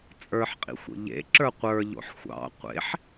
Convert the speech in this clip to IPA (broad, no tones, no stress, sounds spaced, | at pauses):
t͡sʼ ə˞ ħ qʼ ḭ xʷ ḛ ʎ ḛ ǁ ə˞ qʷ ə˞ ʎ o̰ ħ xʷ ɑ̰ qʷ ḛ ħ